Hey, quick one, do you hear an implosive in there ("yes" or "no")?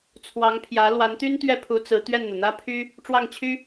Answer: no